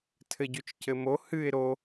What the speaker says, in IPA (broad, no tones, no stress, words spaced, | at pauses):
tʰɘɟʉt͡ʃcɘmo hɨɪ̯ ɾo